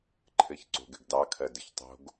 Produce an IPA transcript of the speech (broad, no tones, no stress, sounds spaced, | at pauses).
ǃʰ ɘ ç ǀ o̤ ɡ ɘ ɡ d ɑ kʰ ɜ d ɘ ç tˤ o̤ ɡ